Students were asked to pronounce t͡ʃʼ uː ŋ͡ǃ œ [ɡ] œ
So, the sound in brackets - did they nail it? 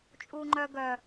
yes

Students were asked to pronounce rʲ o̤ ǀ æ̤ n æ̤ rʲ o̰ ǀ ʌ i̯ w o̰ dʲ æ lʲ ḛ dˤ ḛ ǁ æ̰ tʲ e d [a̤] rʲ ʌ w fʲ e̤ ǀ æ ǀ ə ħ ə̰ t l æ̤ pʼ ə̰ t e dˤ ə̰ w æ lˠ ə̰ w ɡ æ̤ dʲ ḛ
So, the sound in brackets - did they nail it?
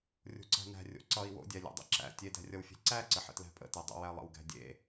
no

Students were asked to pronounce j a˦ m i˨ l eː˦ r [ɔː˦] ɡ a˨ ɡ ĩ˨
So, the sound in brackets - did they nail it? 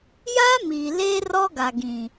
no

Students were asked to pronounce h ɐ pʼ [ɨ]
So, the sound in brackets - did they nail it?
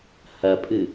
yes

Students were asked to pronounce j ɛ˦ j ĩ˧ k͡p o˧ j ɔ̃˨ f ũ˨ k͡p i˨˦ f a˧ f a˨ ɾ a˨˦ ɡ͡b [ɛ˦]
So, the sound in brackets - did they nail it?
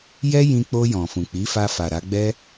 yes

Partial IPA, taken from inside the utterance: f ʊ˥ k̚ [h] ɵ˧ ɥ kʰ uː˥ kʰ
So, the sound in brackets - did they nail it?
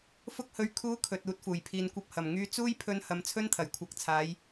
yes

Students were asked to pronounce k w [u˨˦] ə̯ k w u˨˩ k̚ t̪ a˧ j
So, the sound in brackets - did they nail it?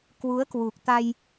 yes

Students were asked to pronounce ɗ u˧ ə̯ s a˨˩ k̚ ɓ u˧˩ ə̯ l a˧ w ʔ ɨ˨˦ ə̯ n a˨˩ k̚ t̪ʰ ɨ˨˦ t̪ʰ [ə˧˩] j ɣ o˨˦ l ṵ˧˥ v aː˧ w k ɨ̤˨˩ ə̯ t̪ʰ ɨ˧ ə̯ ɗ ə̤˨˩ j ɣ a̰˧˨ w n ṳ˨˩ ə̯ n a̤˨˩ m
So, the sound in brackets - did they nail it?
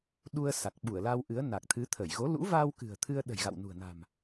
yes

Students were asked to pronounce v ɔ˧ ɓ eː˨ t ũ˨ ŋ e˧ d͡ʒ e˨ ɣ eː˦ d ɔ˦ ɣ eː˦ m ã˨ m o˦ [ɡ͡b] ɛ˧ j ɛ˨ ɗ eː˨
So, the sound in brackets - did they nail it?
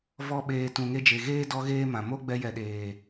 yes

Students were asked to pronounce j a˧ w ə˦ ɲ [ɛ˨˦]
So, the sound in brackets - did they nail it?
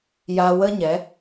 yes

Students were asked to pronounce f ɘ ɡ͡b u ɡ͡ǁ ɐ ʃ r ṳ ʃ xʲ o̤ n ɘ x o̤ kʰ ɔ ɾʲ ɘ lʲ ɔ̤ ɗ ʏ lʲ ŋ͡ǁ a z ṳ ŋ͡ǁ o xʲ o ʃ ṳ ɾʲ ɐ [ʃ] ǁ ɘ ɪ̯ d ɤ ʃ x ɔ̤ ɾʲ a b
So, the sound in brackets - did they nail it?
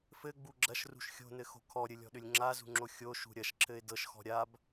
yes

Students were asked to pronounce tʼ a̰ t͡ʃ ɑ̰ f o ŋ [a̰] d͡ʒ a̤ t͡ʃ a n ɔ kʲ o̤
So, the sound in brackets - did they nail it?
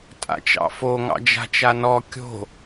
no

